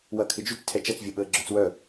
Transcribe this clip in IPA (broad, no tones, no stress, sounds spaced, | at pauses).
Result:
w ɐ kʰ ɪ d͡ʒ y t͡s tʰ ɛ t͡ʃ ɐ t͡s vʲ ɐ ɓ əː ɡ͡ǁ œ t͡s w œ